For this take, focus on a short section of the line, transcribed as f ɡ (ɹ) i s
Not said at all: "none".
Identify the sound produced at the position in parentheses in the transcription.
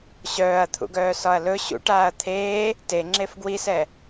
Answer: w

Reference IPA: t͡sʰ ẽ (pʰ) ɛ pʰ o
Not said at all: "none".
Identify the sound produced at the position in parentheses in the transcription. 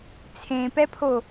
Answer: p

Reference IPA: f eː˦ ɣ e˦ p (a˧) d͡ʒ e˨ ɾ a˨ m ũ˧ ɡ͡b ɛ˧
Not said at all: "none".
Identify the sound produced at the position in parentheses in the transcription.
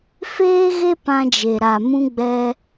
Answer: ã˧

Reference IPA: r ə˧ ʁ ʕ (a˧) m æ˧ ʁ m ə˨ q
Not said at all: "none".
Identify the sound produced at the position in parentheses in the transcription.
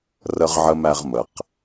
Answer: ə˧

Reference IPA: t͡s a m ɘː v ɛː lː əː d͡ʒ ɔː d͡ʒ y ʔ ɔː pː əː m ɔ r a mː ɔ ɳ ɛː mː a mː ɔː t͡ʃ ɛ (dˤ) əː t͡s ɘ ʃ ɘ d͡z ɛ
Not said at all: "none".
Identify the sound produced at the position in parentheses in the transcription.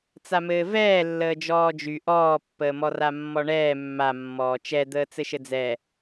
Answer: d̪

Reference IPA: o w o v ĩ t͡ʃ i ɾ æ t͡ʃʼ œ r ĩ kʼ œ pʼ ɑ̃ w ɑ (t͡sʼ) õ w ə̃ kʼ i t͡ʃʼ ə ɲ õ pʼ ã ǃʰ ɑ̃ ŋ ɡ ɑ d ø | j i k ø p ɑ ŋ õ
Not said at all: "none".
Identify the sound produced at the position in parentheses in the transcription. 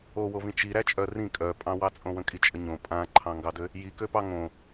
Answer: t͡sʼ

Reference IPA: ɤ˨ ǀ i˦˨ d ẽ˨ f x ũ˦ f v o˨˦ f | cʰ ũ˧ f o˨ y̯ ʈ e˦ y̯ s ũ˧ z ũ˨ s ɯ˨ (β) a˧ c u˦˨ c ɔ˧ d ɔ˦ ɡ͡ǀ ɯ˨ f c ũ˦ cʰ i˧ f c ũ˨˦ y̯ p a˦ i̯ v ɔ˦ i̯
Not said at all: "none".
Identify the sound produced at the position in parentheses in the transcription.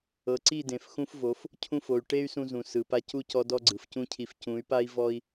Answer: p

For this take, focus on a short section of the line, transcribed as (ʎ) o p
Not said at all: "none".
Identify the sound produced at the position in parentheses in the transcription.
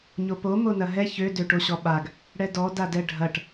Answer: ɲ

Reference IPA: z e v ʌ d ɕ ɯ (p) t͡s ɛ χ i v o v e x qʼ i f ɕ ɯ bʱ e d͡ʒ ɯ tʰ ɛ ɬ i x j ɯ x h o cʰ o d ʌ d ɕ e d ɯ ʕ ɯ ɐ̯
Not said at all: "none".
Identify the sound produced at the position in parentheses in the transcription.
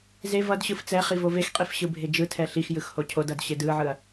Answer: f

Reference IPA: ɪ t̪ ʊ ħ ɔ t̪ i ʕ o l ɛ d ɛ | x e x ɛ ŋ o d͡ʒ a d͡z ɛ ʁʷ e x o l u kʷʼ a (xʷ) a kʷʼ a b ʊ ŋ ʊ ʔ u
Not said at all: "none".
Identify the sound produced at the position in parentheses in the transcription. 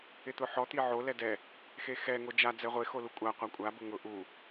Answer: qʷ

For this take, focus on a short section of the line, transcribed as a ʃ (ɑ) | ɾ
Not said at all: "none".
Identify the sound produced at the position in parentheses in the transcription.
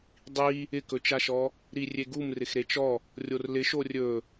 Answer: ɔ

